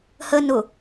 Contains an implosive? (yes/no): no